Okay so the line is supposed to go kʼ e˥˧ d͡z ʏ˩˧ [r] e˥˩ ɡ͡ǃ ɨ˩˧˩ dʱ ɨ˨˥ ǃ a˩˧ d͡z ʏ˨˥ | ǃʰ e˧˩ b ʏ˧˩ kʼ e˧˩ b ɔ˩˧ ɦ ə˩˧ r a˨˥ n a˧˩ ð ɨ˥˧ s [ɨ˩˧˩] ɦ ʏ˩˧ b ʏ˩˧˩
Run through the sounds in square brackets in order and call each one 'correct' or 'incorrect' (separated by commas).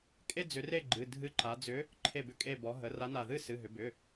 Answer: correct, correct